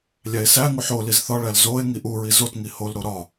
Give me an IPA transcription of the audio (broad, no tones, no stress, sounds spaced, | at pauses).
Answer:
lʲ æ e̯ s æ ŋ u ħ o l i z θ ɒ ɭ æ l z o e̯ ŋ i ʔ u ɹ i z o t ŋ i h o l ɾ o ɾ ɒ